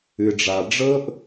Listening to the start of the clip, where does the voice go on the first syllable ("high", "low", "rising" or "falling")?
low